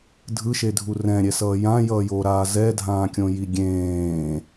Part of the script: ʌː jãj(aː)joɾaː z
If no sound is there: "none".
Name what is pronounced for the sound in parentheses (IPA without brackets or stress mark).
ʌː